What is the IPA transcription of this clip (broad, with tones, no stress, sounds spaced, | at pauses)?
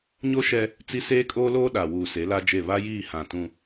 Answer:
ɲ o˦ ʃ ɛ˦ | t͡s i˦ s eː˦ kʼ oː˦ l oː˦ ɗ a˨ w uː˨ s e˨˦ l a˦ d͡ʒ e˦˨ β a˦ j iː˦˨ h ã˨ t ũ˦